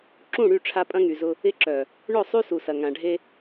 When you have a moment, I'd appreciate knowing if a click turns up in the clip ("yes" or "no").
yes